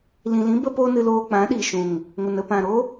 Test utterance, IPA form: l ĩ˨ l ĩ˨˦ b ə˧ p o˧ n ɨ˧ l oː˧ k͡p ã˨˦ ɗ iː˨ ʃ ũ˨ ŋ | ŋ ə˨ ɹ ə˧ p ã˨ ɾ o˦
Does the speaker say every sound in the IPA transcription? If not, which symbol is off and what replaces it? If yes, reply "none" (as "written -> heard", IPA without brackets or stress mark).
ɹ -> n